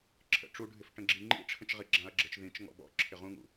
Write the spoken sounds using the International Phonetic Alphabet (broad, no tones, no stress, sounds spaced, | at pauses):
ǁʰ ə̰ ʈ͡ʂ u ɖʱ ɪ f ʈ ə̃ ɡ͡ǁ i ŋ͡ǃ ḭ ʈ͡ʂʰ ə̃ t͡ʃ ʁ i ɡ͡ǁ ã ɐ̯ ɡ͡ǁ ə t͡ʃ ð ĩ t͡ʃ ŋ ɔ̰ b ɔ̰ ǁʰ ɪ ʁ ũ ŋ ṵ